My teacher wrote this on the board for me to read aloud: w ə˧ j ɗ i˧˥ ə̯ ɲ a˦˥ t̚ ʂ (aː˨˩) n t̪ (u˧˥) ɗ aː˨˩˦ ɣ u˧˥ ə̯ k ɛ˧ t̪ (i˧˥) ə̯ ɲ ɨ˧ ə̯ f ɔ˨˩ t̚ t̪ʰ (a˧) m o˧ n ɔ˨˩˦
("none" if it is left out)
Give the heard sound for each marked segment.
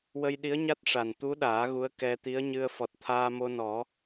a˨˩, u˧˥, i˧˥, aː˧

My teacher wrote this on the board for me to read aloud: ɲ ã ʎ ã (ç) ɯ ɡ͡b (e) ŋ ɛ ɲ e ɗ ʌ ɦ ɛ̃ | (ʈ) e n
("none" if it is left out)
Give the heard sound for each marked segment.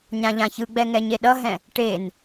ç, ɛ, ʈ

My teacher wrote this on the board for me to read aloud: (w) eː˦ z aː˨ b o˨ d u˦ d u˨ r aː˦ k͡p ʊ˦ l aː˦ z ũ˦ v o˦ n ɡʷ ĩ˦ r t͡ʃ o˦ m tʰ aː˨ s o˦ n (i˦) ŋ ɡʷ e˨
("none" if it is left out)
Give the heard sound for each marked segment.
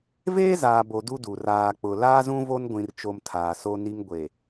v, i˦

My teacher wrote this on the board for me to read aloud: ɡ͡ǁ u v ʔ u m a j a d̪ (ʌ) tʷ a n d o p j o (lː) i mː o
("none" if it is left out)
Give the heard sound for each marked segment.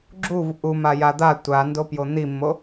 a, n̪

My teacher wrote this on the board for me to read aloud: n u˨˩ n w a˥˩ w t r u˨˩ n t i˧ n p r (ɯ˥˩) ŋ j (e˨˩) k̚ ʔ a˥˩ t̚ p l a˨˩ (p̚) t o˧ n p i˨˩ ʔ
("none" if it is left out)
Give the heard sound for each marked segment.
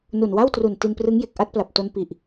ɯ˦˥, e˨˩, p̚

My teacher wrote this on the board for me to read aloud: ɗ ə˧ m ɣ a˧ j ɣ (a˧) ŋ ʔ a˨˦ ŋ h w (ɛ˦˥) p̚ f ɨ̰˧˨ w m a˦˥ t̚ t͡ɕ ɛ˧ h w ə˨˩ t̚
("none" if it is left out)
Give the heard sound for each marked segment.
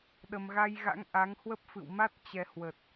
a̰˧˥, ə˦˥

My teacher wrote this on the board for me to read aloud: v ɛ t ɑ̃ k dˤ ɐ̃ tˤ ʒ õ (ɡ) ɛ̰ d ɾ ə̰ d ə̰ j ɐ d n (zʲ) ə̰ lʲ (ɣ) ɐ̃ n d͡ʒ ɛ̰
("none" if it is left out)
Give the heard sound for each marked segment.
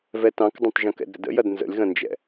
k, z, ɣ

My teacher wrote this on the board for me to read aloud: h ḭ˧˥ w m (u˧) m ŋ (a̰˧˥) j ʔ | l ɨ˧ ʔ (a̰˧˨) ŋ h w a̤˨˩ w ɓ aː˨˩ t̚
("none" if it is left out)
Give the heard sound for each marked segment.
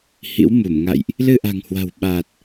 u˧˩, a̰˧˨, a̤˨˩

